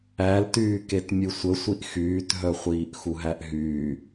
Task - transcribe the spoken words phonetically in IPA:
æltyːket mʲɨsʷəsʷiʔ xyːtɦœχʷiːʔ xuɦæʔɦyː

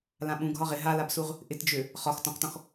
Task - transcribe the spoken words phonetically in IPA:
lãɓũ ɡʱɒʁɪ ɦalabsuʁ | ʔɪtd͡ʒø | χɒx tɔ̃qtɔ̃x

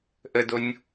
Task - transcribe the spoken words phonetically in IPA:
ʔədonʲ

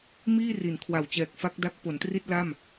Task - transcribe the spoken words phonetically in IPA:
miː˥˩ ri˩˦nkʰwa˨˩wt͡ɕɛː˨˩k̚ fa˦˥k̚da˦˥k̚ po˩˦ntri˥˩t̚ la˥˩m

